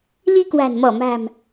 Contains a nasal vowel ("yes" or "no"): no